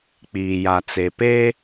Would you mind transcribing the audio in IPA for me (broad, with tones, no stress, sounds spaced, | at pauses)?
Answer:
k͡p iː˨ j a˨ t͡s e˨ p e˦